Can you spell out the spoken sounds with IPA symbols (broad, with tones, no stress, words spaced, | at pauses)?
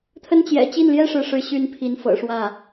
t̪ʰə˥nt͡ɕjɛ̰˨˩ t͡ɕi˥˩nljɛ˥ ʂɻ̩˥ʂɻ̩˥ ɕy˥npʰi˧˥nfɤ̰˨˩ ʂwä˥˩